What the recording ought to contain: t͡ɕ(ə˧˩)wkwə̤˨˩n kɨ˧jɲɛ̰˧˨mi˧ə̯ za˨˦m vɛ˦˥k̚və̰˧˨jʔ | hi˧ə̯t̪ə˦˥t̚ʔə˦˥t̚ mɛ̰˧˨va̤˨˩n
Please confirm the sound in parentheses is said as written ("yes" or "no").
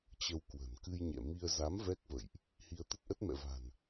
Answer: no